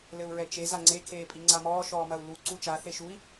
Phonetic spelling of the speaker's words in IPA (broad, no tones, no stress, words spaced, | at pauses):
lɘu̯ɹɛt͡ʃe zaŋ͡ǀe kʰeːpʼiŋ͡ǀamɔː ʃɔːmɐu̯ lu ǀut͡ʃa θeʃui̯